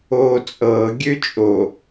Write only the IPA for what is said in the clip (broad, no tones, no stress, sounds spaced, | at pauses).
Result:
oː t͡sʼ ɤː ɡʲ ø t͡ʃʼ o